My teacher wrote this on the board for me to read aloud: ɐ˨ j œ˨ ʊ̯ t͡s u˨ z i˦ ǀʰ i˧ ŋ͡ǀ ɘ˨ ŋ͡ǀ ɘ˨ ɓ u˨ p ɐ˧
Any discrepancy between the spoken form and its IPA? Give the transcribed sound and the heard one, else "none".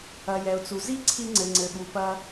œ˨ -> ɛ˨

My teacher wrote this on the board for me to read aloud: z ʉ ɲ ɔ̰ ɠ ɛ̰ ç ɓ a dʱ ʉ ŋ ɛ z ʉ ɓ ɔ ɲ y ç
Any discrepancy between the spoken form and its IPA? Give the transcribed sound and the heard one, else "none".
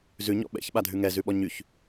ɠ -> ɓ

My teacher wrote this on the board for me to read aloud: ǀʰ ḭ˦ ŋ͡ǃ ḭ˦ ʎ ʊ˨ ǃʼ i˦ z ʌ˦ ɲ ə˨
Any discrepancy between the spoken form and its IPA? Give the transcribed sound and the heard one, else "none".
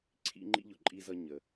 none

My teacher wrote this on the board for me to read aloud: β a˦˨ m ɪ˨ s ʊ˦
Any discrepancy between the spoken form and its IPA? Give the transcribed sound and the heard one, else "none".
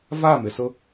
β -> v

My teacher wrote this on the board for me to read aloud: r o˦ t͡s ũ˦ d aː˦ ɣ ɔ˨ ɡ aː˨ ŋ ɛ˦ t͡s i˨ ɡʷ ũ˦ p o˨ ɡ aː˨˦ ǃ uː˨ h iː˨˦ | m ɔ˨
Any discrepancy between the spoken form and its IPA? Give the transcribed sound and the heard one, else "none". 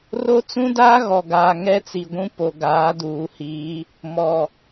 ǃ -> d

